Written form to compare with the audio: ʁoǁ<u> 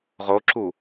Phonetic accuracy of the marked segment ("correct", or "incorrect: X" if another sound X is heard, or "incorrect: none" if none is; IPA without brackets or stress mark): correct